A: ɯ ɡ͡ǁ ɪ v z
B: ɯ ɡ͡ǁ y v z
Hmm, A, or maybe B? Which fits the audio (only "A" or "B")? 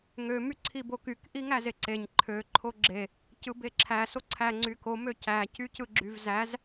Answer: B